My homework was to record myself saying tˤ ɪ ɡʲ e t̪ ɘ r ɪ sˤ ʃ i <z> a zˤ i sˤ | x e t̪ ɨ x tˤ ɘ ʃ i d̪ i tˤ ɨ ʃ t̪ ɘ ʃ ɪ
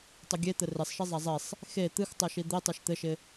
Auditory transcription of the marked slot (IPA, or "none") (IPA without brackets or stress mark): zˤ